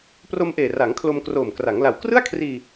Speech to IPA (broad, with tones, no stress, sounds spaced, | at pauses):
p r o˧ m ʔ eː˨˩ r a˩˦ ŋ kʰ l o˧ m k r oː˨˩ m k r a˩˦ ŋ l a˨˩ w k r ɯ˥˩ a̯ kʰ r iː˧